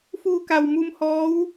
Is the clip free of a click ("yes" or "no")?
yes